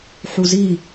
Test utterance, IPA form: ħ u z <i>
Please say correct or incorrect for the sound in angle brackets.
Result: correct